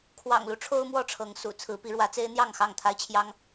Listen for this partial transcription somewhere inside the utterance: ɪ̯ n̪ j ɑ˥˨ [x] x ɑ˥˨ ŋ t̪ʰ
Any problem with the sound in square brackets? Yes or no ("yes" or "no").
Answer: yes